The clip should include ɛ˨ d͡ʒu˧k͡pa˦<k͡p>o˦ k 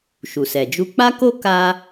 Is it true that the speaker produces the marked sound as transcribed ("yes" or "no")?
no